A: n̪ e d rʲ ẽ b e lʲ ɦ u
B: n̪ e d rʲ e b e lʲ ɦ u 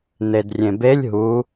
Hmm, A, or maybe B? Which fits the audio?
A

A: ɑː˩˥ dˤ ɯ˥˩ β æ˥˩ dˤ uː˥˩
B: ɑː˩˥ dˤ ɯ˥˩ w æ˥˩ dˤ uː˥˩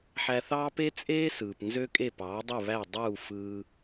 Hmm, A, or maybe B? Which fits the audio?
A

